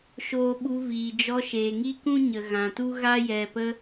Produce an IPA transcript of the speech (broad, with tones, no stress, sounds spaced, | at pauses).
ʃ oː˧ ɓ u˧ v iː˨ d͡ʒ ɔ˧ ʃ eː˨ ŋ i˦ k ũ˦ ɲ ə˨ ɣ ã˨ t u˦ ɣ a˦ j ɛ˨ p ə˧